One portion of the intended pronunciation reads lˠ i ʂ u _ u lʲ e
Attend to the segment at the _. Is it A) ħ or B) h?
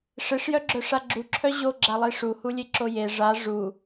B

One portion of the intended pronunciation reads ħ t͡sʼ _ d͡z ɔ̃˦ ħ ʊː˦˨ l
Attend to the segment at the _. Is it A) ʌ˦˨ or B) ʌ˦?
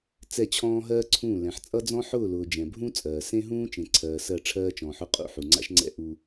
B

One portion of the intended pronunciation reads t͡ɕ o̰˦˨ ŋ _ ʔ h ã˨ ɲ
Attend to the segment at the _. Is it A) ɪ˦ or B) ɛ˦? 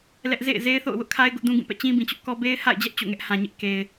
B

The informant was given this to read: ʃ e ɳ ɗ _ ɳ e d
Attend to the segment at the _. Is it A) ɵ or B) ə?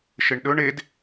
A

